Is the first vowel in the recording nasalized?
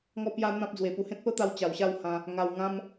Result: no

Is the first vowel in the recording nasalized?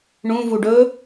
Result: yes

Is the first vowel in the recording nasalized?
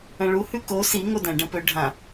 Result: yes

